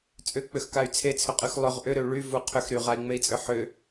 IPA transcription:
t͡sʼʏk͡pʏxkay̯ t͡sʰet͡sʰʏqʼyx lˠʏʁ ʔʏɾʏu̯ ɭyvu qʰʏx ɾyʁai̯ŋ͡mei̯t͡sʼʏ ħʏ

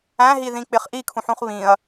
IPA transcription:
æ̃ɦiðĩ k͡pɪχʔikʰũħũχ βĩɐ̯

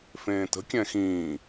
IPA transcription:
fẽːtə̤ kʲɛ̃xĩː

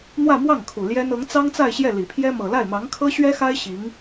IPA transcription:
n̪wä˥˧mwɑ˥˩ŋ kʰu˨˩ ljɛ˥n ɤ˧˥ŋt͡sɑ˥ŋt͡sa˥˧ɪ̯ɕjɛ˥˩ li˨˩pʰjɛ˥ mɤ˨˩la˥˩ɪ̯mɑ˧˥ŋkʰɤ˥ ɕɥɛ˥xa˥ɪ̯ ɕi˧˥ŋ

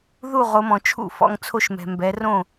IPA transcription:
ðu˥˩ ʁo˩˧mɔ̃˩t͡ʃʰṵ˥˩ fɔ̰˥˩ŋt͡sʰo˦ʃmɛ̤˩ mbɛ˩˧ rõ˥˩

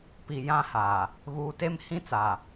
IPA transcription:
pi˨jã˦ha˨ | ɣuː˨te˦mhĩ˦t͡sa˨

